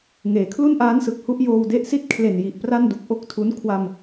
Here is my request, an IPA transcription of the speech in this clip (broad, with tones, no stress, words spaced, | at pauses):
ŋeː˩˦ kʰlu˥˩nʔaː˦˥nsɯ˨˩k̚ hu˦˥ʔ joː˧w de˦˥ʔsi˥˩t̚ kʰle˨˩nji˨˩ʔ pra˥˩ndu˨˩k̚ ʔo˥˩k̚tʰu˦˥n kʰwa˧m